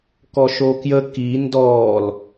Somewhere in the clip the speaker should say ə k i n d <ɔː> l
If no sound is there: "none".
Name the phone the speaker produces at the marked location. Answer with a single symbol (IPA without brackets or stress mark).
ɔː